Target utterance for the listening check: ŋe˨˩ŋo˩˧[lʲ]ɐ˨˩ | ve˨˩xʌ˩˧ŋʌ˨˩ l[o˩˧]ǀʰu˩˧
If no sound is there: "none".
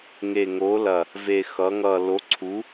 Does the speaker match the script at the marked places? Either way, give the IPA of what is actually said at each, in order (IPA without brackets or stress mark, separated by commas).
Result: l, o˩˧